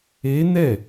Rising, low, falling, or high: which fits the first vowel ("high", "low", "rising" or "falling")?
rising